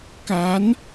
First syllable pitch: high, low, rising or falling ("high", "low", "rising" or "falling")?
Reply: rising